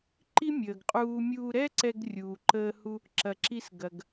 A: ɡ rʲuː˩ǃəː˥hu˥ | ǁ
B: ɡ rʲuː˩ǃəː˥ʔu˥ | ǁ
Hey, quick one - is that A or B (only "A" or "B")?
A